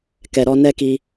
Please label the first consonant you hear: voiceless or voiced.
voiceless